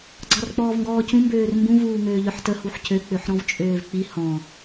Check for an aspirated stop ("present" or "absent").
absent